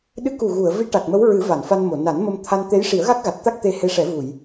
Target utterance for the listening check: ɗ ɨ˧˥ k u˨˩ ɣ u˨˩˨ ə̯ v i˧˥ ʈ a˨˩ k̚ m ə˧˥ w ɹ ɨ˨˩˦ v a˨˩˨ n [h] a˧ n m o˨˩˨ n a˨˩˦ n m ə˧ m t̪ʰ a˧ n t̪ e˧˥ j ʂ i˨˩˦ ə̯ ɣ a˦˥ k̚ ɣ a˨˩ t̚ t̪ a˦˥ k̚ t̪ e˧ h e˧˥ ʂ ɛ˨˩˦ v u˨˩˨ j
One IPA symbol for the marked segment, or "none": f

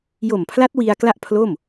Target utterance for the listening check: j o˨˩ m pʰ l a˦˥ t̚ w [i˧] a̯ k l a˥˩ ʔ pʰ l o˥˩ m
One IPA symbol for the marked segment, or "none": i˧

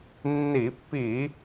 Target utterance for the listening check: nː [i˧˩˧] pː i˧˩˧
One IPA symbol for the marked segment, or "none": i˧˩˧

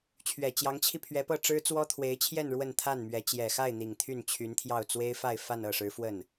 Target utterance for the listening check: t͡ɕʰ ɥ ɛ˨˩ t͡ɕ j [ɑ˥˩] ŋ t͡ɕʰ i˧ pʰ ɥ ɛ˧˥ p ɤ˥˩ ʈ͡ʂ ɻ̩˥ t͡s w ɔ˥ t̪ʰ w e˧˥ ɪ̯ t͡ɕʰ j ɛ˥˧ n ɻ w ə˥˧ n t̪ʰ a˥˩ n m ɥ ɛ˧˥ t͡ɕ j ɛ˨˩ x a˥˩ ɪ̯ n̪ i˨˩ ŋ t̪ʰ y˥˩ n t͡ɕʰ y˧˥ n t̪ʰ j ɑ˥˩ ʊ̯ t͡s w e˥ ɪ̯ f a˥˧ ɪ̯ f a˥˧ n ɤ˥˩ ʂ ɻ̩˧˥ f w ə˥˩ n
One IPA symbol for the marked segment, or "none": ɑ˧˥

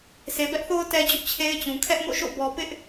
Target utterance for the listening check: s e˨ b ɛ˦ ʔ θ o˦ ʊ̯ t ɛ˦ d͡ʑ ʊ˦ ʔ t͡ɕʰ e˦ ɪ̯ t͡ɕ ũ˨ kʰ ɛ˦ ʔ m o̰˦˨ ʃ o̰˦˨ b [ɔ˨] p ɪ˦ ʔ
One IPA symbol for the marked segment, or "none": ɔ˨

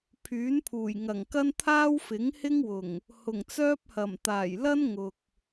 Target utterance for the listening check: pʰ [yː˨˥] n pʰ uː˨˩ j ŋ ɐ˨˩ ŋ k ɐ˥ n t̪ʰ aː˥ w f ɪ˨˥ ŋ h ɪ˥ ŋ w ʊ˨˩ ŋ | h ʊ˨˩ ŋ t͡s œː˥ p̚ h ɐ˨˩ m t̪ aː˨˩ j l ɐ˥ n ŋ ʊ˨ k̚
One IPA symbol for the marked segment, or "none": yː˨˥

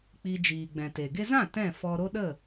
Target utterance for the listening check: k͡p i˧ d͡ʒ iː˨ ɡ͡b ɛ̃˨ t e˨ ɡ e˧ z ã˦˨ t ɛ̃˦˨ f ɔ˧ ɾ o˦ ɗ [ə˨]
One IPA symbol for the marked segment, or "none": ə˦˨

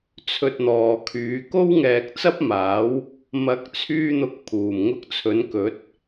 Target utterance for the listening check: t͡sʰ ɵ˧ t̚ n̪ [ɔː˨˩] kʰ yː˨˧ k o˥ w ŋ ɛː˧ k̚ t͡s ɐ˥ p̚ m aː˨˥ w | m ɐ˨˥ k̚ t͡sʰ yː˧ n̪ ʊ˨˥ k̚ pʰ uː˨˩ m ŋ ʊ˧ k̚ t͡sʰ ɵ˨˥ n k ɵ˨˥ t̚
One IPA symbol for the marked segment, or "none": ɔː˨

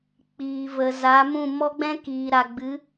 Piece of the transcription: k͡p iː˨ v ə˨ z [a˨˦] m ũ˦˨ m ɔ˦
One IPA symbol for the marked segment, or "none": a˨˦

